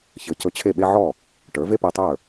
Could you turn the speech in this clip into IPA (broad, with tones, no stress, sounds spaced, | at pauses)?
ç ɘ˩˥ c ɵ˧ t͡ɕʰ e˥˩ ɓ e˥ ʕ ɔ˥˩ | ʈ ə˞˩˥ v e˥ p e˧ tˤ ə˞˥˩